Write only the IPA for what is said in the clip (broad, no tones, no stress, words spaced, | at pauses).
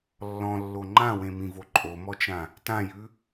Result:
lːɔ̃lːo ŋ͡ǃãwẽmĩvo ǃʼomɔt͡ʃã | tãjʉ